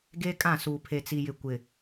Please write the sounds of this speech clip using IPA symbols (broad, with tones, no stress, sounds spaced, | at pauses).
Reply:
ɡ eː˦ kʼ ã˦˨ s uː˨ pʰ e˨ t͡s i˨ j ɪ˨ kʷ ɪ˨